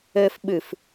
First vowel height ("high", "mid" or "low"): mid